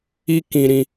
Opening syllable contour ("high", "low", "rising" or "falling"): high